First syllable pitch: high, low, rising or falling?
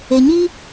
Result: low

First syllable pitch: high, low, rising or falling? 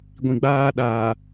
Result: low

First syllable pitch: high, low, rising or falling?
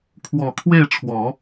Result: low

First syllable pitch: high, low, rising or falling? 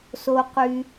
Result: low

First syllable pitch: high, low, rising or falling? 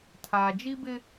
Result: low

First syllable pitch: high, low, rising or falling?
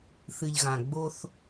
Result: low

